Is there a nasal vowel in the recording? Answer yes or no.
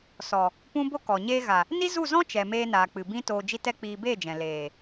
yes